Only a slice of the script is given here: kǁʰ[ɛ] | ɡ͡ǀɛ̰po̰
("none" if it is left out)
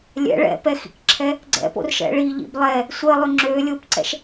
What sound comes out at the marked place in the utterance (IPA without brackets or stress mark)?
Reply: ɛ